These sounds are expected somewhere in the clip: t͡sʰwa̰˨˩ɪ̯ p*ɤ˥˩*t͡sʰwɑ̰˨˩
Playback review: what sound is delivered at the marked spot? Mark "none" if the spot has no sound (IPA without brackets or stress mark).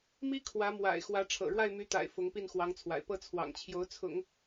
ɤ˥˩